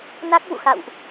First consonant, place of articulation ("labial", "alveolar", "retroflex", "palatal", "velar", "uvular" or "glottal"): alveolar